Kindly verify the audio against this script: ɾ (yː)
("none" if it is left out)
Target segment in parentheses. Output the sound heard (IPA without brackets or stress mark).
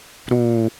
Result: uː